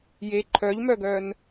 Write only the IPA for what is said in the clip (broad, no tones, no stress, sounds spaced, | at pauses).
j e ǃʰ œ ʎ m œ ɡ œ n